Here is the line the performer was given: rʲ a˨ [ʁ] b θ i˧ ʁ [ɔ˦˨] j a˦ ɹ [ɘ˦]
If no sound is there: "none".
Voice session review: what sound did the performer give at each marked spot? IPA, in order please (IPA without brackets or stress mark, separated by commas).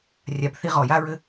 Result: none, ɔ˨, ɘ˦